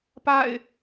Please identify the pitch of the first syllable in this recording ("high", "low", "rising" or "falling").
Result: falling